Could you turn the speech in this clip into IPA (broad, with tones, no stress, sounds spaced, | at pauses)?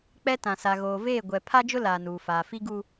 k͡p ɛ˦ t ã˨ s a˨ ɣ oː˨ v eː˦˨ ɡʷ ɛ˨ pʰ a˦ d͡ʒ ʊ˦ l aː˨ n uː˨ f aː˨ f i˦ ɡ u˦